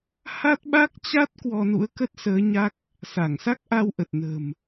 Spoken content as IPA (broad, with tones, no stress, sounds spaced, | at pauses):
h a˦˥ t̚ ɓ a˦˥ k̚ t͡ɕ a˦˥ t̚ k w ɔ˧ n ṵ˧˥ ə̯ k ə˦˥ t̚ s əː˨˦ ɲ a˦˥ k̚ | s a˧˩ ŋ s a˦˥ k̚ ʔ a˧ w ʔ ə˨˩ t̚ n ə̤˨˩ m